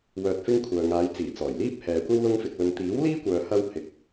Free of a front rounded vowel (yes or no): no